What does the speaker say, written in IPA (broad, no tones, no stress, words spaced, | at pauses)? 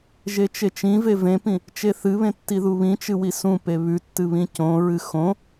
ʒet͡ʃet͡ʃĩve vẽpĩ | t͡ʃeθɨβẽ tːiðuβĩt͡ʃɨ wisũpe βʉtːɨ βĩcõɹɨ xõ